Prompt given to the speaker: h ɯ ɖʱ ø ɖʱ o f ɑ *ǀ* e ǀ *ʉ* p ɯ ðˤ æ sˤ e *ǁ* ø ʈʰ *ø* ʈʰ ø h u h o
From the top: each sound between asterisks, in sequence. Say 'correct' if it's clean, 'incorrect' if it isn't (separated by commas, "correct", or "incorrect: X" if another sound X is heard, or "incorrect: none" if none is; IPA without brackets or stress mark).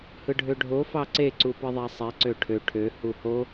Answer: correct, incorrect: u, incorrect: ǀ, correct